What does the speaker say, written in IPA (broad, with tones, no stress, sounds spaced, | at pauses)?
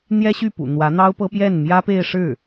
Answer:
n̪ j ɛ˥ ɕ y˥˩ p ṵ˨˩ n̪ w ä˧˥ n̪ ɑ˥ ʊ̯ p ɤ˥ p j ɛ˥˩ n m j ä˥ p e˥˧ ɪ̯ ʂ ɻ̩˥˩